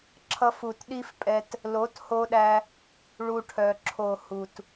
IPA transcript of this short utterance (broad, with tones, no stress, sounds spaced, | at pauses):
ǁʰ ʌ˧ f u˨ t ɗ i˦ f pʼ ɛ˧ t | l o˨˦ t h o˧ ɗ æ˧ | ɭ u˧ ʈʰ œ˨ ǁʰ o˨ h u˨ t